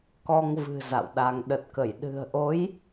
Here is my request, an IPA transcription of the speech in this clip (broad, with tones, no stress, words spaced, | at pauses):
kɔ˧ŋvɨ̤˨˩ za̰˧˨wɗa˧ŋ ɗə˨˩t̚kə˧˩j ɗɨ̤˨˩ə̯ʔo˨˦j